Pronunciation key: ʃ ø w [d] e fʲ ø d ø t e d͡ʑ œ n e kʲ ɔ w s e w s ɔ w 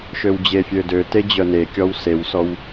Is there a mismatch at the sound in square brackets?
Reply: yes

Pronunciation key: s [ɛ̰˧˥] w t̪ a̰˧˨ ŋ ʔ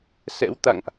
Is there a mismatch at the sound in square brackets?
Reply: no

